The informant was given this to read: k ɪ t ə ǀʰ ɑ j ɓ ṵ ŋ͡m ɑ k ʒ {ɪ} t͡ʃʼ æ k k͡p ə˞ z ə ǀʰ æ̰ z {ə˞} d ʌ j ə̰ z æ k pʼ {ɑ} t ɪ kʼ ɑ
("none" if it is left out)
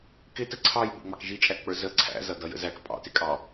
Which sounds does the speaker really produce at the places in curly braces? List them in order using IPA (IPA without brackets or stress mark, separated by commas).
i, ʌ, ɑ̰